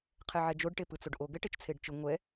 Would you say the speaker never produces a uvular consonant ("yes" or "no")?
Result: no